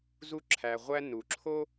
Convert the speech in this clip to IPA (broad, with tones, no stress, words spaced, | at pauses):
zu˦ǁʰæ˨ʁʷæ˦ nu˩ǁʰo˥